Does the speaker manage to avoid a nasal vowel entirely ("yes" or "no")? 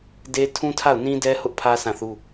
no